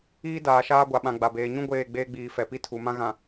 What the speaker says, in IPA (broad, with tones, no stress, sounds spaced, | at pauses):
iː˦ d aː˨ ʃ aː˦ ɡʷ a˨ ɓ ã˨ ɡ͡b a˨ b eː˨ ɲ ũ˦ ɡʷ eː˦˨ ɡ͡b eː˦ ɡ͡b iː˨ f ɛ˨ p i˦ tʰ u˨ m ã˦ ɣ ã˨